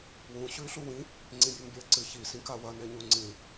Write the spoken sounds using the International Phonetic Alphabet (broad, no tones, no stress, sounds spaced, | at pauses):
w ũ ɕ ʉː ɬ u w ĩ | ŋ͡ǀ ĩ bʲ ʉ m bʲ ɐː ǀ ɨ ç i s ĩ k a w ɐ n e ɲ u ŋ͡ǀ ĩ